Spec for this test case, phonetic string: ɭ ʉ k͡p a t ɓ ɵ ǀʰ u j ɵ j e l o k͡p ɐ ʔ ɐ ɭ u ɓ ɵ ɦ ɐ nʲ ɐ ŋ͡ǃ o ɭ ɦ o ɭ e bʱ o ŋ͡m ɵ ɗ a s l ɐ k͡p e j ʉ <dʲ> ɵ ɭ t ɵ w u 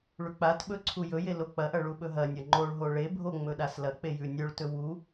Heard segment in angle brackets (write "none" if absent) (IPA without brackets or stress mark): nʲ